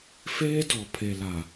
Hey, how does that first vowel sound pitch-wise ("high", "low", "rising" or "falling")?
high